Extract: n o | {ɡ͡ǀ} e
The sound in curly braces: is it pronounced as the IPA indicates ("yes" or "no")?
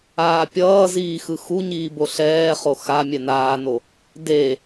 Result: no